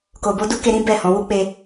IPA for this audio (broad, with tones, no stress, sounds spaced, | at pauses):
k o˨ b o˧ d u˦ k e˧ ɾ ĩ˦ b ɛ˦˨ h ɔ̃˨˦ w u˦ k͡p e˧